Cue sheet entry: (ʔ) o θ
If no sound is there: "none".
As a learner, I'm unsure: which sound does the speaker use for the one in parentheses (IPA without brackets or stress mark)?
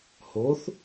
h